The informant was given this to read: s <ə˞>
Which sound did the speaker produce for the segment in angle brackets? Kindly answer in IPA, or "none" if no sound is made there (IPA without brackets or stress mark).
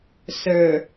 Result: ə˞